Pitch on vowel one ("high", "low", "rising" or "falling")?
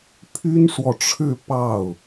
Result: high